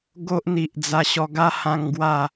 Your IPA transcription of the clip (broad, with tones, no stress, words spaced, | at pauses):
ɡo˦ʔ n̪i˨ʔd͡za˧ɕɔ˧ ɡa˦hã˧ŋɡwa˥˧